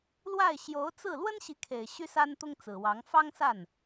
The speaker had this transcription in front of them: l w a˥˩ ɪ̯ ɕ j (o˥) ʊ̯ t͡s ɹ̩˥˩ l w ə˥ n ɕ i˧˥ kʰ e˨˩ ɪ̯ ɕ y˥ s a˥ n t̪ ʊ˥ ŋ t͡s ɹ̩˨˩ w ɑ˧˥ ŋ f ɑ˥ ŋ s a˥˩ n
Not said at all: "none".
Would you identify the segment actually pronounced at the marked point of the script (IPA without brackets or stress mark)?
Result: o˧˥